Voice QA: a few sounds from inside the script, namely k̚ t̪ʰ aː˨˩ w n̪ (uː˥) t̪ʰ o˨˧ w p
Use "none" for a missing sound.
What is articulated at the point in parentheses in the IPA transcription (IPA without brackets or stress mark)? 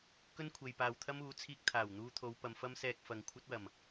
uː˧